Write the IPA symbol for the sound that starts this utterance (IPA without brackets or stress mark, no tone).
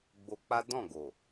ɡ͡b